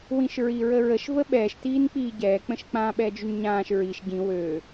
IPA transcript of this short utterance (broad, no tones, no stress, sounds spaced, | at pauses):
w ĩ ʃ ɹ i ɹ ə ɹ ə ʃ v ə ɓ ɛː ʃ t iː n k͡p iː ɟ ɛː k͡p ə̃ ʃ k͡p ã ɓ ɛː d͡ʒ y n ɲ ãː ʃ ɹ i ʃ ɟ ĩ w ø